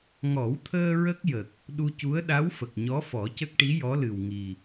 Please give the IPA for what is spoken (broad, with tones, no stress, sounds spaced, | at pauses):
ŋ ɔ˨˩˦ w t̪ʰ əː˧ ɹ ə˦˥ k̚ j ə˨˩ k̚ | ɗ u˧ c u˧˥ ə̯ ɗ a˧˥ w f ə˨˩ k̚ ɲ ɔ˧˥ f ɔ˨˩˦ c ə˦˥ k̚ ʈ i˧˥ j ɔ˧˥ l ɨ˨˩ w ŋ i˨˩